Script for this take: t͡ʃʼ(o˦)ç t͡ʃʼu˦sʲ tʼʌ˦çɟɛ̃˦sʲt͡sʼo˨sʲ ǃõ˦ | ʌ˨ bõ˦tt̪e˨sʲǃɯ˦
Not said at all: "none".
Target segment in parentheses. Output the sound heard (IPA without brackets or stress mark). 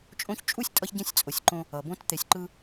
õ˦